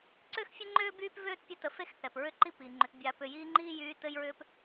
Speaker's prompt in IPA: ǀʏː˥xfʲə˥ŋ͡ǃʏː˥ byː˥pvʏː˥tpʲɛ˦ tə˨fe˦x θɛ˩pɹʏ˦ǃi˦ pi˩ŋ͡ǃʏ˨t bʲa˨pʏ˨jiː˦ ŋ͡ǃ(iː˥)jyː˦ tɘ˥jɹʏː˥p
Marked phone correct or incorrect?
correct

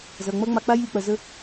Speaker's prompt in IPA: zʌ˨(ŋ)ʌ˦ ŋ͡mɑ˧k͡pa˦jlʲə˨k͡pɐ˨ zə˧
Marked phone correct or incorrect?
incorrect: ŋ͡m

